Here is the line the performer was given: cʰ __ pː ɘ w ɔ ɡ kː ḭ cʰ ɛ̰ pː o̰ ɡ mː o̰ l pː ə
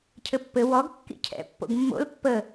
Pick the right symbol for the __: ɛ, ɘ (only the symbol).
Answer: ɘ